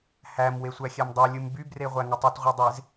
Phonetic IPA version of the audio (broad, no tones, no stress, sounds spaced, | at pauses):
h æ m w e sʷ æ xʲ æ m dˤ ɑ lʲ ɯ m b y b r e ʁʷ æ ŋ ɯ tˤ u t ʁʷ e dˤ e z